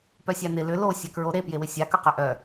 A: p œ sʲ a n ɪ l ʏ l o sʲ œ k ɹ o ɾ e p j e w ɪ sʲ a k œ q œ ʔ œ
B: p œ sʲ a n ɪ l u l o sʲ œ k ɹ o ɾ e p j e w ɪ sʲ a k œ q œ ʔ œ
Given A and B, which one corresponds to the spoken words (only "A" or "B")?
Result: A